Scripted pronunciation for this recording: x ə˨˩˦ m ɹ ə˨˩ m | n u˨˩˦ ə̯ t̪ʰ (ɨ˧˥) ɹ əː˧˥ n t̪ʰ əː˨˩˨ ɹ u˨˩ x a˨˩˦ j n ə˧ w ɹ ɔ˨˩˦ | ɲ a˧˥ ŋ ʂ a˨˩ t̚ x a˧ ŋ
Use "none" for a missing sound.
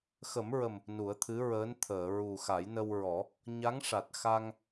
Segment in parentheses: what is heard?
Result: ɨ˧˥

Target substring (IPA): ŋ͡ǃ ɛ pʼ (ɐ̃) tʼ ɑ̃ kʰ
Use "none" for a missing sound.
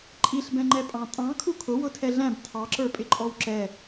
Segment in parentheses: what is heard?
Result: ɑ̃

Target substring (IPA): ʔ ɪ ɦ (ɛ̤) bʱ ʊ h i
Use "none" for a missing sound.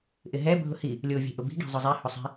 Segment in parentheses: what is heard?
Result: ɛ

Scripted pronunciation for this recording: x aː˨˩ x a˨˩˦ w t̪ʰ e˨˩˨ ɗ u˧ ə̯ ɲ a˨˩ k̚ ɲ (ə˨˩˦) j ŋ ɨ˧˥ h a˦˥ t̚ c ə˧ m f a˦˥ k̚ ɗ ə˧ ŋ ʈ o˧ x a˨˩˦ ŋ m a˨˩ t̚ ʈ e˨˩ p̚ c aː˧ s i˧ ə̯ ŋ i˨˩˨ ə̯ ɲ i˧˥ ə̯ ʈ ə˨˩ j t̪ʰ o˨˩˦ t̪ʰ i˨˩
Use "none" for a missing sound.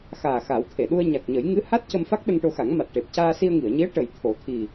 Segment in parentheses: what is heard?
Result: ə˨˩˦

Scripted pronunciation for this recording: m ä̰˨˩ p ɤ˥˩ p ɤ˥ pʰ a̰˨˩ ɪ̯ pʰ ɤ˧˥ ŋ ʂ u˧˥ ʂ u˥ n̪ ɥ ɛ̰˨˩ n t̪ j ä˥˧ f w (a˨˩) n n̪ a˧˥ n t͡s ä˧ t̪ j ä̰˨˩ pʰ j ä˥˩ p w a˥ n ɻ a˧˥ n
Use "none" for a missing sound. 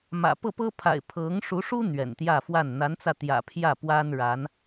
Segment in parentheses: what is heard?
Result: a˥˩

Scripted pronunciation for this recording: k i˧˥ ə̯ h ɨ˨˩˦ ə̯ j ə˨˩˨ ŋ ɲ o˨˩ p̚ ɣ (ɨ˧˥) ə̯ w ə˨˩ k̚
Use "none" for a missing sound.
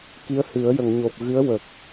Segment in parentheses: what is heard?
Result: ɨ˧˥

